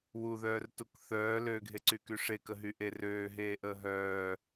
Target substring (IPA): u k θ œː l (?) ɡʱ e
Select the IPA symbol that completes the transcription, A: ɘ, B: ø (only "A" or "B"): B